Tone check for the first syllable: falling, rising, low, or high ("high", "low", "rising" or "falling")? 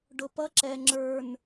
low